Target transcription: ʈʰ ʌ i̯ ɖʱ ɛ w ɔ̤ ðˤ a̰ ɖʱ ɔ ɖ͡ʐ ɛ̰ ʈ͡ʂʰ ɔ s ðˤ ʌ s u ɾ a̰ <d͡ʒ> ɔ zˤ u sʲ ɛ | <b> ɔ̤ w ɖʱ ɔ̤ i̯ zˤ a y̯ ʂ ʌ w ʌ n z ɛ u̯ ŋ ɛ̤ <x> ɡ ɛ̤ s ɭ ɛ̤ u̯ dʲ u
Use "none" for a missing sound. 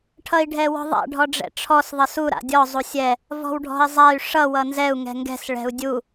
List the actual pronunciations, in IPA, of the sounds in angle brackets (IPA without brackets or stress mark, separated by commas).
dʲ, v, ŋ